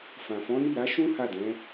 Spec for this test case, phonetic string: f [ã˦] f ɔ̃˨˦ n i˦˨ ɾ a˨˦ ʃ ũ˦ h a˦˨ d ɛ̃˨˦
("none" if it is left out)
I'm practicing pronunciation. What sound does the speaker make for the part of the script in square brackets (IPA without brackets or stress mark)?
ã˨